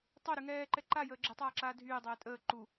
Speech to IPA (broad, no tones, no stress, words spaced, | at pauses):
tˤoɾy ŋɛːǃɛ ǃajəː ɡ͡ǁɛtˤaːǁaː dʱyːdˤɛː tʼəː ǃu